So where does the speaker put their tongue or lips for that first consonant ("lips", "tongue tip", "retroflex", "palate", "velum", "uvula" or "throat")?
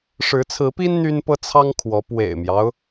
retroflex